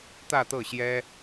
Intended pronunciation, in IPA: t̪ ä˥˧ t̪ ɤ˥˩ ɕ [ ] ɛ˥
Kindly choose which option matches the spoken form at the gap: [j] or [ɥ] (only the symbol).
j